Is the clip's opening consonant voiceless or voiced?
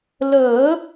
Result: voiced